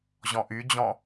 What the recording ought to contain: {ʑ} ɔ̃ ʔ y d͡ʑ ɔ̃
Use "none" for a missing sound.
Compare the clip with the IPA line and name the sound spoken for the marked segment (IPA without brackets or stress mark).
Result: ʑ